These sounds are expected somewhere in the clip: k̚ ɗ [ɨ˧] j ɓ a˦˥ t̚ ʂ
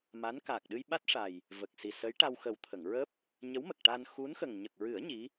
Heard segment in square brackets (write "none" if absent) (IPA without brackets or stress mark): ɨ˧